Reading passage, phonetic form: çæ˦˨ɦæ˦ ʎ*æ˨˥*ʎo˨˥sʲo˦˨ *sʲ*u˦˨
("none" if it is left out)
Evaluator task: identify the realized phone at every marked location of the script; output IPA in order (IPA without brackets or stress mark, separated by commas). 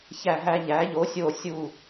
æ˨˥, sʲ